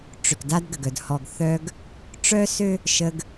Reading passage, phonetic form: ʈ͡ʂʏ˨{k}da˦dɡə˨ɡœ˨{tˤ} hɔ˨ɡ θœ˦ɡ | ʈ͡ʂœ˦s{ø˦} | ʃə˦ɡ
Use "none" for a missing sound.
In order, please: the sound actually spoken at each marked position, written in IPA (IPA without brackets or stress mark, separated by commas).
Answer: k, d, ø˦